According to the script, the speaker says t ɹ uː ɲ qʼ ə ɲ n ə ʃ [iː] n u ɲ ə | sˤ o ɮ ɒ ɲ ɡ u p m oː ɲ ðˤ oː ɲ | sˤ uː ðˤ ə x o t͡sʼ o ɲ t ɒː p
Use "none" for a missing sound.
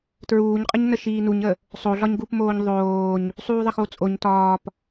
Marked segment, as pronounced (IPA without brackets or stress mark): iː